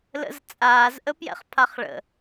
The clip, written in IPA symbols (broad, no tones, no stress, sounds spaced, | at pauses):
l ə̰ z t͡sʼ aː z ʔ ə p j ɛ̰ χ pʰ a χ ɭ ə̰